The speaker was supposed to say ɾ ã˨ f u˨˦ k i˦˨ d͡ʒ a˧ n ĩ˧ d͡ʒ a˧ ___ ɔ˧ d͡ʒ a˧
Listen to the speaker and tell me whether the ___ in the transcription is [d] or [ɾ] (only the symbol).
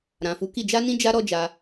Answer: ɾ